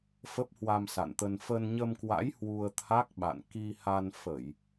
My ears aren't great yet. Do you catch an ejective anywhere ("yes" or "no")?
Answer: no